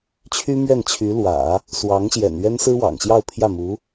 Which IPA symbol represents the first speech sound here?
t͡ɕʰ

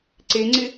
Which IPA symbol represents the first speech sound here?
ǀ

